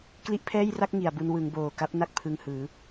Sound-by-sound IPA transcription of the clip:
k l i˦˥ ʔ pʰ ɛː˥˩ j r a˥˩ k̚ ŋ i˨˩ a̯ b u˧ n w ɯ˩˦ ŋ b oː˨˩ k a˦˥ p̚ n a˦˥ k̚ pʰ ɯ˧ ŋ h ɯː˩˦

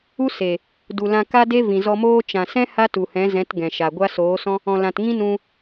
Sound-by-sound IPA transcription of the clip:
u˦ s e˨ | d u˨ l ã˧ k a˦ d e˦ v ĩ˨ z ɔ˧ m oː˦ t͡ʃ ã˨ s ɛ̃˦ h a˦ t u˨ h ɛ̃˨˦ z ɛ̃˨˦ t ɡ ɛ̃˨ ʃ a˨ ɡʷ a˦ s oː˨˦ s ɔ̃˦ | ɔ̃˨ l ã˨ t ŋ ĩ˦ n ũ˧

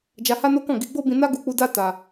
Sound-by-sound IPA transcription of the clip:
d͡ʒ a˧ h a˦ n o˦ k ɔ̃˦˨ ɡ i˧ ɡ͡b o˦ b ĩ˧ n a˦ ɡ u˧ k͡p u˧ d a˦ t a˧

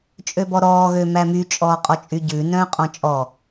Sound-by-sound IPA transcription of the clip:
t͡ʃʼ ø b ɔ ɾ ɔː ɣ ø m æ m y t͡ʃʼ ɔː qʼ ɔ t͡ʃʼ y ɟ ʉ n œ̃ː qʼ ɔ̃ t͡ʃʼ ɔ

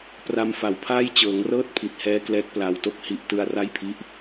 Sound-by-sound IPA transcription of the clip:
p r a˧ m f a˩˦ w pʰ aː˥˩ j t͡ɕ ɤː˩˦ ŋ r ɤː˥˩ t̚ pʰ i˨˩ t̚ h ɛː˦˥ k l ɛː˦˥ k̚ p l a˧ w t o˥˩ k̚ h i˦˥ ʔ t ɯ˧ a̯ r a˥˩ j pʰ i˦˥ ʔ

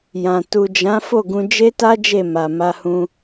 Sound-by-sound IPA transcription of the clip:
j ã˨ t u˨ d͡ʒ ã˨˦ f o˦˨ ɡ ũ˧ d͡ʒ e˦ t a˦ d͡ʒ e˦˨ m a˨ m a˧ h ũ˧

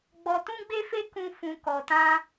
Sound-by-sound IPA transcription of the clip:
ɡ͡b ɔ˧ t ũ˦ ɡ͡b e˦ f e˦ k ũ˦ f ũ˧ k ɔ˧ t ã˦

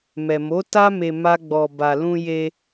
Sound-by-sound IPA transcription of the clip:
m ɛ˨ m o˨˦ t a˦ m e˧ m a˦ ɡ͡b ɔ˧ b a˨ l ũ˧ j e˧

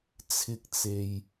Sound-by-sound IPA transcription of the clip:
t͡sʰ ɪ˥ k̚ t͡s e˧ j

